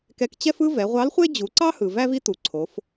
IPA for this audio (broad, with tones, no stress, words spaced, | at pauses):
kɛ˧k t͡ɕɛ˥fɯ˥ vɛ˩˧ʁʷɑ˧˥lχʷe˥ d͡ʑu˩˧ǀɑ˥hɯ˩ væ˥vi˥ tu˩˧ǀʰo˩˧f